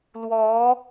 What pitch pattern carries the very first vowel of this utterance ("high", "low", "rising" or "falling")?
rising